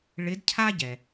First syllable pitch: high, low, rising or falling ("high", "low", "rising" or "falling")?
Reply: rising